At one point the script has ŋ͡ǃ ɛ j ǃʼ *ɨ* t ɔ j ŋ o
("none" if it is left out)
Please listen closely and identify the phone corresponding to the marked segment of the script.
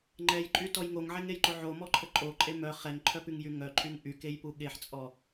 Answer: y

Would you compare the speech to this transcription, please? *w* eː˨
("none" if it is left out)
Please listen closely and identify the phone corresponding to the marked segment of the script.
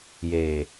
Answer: j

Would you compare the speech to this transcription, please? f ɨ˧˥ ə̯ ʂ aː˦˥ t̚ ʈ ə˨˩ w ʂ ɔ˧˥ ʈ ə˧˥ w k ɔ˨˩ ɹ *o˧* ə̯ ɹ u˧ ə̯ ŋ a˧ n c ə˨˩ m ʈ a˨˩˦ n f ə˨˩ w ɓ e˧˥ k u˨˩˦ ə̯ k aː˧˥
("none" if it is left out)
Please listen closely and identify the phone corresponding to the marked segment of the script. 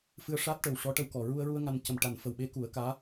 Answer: u˧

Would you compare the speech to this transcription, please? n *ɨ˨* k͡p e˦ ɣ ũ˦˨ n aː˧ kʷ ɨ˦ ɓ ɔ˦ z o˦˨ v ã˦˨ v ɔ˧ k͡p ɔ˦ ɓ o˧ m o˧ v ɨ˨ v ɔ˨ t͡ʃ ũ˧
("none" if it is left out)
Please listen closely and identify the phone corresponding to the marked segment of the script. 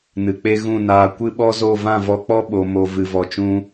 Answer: ɨ˨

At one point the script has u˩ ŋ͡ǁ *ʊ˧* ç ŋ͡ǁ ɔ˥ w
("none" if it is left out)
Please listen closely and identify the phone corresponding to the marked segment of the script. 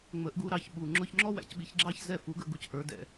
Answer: ʊ˧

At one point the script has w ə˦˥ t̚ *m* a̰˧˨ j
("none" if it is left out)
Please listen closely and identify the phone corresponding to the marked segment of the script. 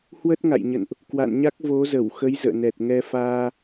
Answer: ŋ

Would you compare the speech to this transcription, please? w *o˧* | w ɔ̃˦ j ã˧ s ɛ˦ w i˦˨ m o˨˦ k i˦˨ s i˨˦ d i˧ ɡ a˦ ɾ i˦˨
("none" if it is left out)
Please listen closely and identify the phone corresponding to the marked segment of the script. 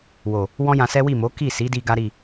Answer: o˨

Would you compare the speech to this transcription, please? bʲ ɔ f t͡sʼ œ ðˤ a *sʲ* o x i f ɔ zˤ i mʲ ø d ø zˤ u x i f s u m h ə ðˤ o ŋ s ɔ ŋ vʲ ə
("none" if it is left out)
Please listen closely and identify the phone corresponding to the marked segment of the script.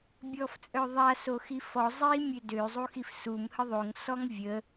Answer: s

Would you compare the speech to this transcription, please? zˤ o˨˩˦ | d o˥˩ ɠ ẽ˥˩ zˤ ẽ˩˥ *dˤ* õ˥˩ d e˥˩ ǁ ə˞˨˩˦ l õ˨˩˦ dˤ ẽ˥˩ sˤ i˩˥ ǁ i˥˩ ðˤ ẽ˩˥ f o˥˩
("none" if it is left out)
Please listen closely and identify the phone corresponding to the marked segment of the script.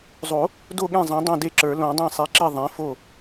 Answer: dˤ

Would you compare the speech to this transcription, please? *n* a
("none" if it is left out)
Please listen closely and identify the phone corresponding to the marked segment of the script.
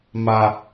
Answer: m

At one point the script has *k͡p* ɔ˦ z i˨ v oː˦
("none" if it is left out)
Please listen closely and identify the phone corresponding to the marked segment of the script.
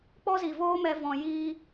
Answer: k͡p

